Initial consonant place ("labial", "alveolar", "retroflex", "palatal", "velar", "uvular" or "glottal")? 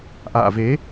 glottal